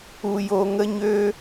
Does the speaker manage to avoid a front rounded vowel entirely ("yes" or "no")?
no